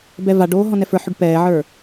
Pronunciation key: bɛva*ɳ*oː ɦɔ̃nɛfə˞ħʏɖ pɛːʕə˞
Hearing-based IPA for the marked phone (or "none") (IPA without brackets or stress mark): ɖ